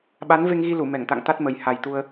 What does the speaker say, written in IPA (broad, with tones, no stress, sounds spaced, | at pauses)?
ɓ a˨˦ n v e˧ ŋ ɣ i˧ l u˧˩ m ɛ˧˩ ŋ t̪ a̰˧˨ ŋ t̪ a˦˥ t̚ m ə˨˩ j h a˨˩ j t̪ u˧ ə̯